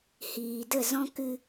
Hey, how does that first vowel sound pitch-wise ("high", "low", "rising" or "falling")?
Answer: low